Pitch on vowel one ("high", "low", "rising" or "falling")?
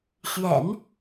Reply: low